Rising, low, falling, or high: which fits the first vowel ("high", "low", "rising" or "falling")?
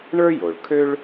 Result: high